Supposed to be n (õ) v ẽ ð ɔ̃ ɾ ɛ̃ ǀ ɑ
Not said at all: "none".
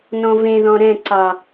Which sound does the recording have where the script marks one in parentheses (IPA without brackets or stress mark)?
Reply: ɔ̃